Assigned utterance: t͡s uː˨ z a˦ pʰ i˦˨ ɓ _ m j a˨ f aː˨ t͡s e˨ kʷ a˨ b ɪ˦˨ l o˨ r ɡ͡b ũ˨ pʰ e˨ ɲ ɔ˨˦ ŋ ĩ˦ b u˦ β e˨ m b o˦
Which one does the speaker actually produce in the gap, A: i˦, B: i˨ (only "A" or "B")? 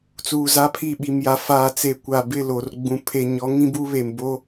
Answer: B